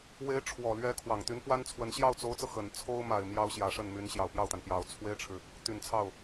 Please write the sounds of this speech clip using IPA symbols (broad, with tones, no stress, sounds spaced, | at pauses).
w e˧˥ ɪ̯ ʈ͡ʂʰ w ɔ˨˩ l ɥ ɛ˧˥ kʰ w ɑ˨˩ ŋ t̪ y˧˥ n p w a˥ n t͡sʰ w ə˧˥ n ɕ j ɑ˥˩ ʊ̯ t͡s o˧˥ ʊ̯ t͡s ɤ˧ x ə˨˩ n t͡sʰ o˥ ʊ̯ m a˨˩ ɪ̯ m j ɑ˥ ʊ̯ ɕ j ä˧˥ ʂ ə˥˩ n m y˧˥ n ɕ j ɑ˨˩ ʊ̯ p j ɑ˥˩ ʊ̯ t̪ a˩ n p j ɑ˨˩ ʊ̯ t͡sʰ w e˥ ɪ̯ ʈ͡ʂʰ ɻ̩˨ | t̪ y˨˩ n t͡sʰ ɑ˥˩ ʊ̯